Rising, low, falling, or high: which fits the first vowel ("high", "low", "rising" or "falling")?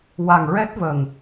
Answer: low